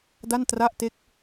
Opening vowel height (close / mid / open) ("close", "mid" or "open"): open